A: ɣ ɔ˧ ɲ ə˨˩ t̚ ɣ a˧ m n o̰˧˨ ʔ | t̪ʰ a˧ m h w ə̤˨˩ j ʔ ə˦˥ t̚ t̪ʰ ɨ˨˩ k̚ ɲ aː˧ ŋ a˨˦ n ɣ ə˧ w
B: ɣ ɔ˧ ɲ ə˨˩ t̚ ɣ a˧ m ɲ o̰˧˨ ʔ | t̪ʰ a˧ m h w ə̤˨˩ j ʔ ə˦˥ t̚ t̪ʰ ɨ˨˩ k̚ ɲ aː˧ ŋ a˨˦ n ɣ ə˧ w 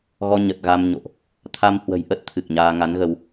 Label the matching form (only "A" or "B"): B